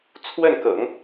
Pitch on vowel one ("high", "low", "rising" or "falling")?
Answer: falling